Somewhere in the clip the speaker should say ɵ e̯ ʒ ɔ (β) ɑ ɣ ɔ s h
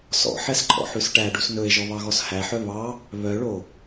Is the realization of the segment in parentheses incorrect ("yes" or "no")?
no